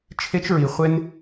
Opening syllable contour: high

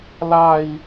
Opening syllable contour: falling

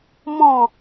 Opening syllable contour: falling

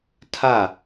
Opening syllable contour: falling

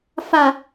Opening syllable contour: low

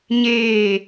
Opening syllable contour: falling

